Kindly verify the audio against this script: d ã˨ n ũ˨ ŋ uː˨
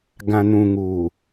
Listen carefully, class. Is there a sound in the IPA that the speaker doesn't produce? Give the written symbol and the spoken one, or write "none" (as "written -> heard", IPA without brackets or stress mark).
d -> ɡ